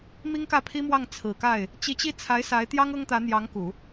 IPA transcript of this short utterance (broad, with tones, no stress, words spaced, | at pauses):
mi˥ŋkä˥˩ pʰi˥mwɑ˥˩ŋ t͡sʰɹ̩˨˩ka˥˩ɪ̯ | t͡ɕi˧˥t͡ɕi˥˩ t͡sʰa˧˥ɪ̯ sa˧˥ɪ̯t̪jɑ˥ŋ ɤ˥ŋt̪ä˧˥n̪jɑ˧˥ŋ ku˨˩˦